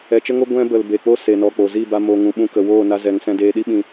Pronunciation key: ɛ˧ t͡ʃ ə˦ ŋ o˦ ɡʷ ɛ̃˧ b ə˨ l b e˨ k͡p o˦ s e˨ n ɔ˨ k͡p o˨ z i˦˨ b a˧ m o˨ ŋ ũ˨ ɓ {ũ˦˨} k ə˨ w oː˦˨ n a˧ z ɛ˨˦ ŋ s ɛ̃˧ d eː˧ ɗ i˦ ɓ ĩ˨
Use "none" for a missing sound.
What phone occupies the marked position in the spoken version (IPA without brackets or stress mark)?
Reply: ũ˧